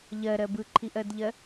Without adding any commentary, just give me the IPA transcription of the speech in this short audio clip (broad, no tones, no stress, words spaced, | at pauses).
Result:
ʎɜɾɜ bɯǃʰiʔɜdʎɜ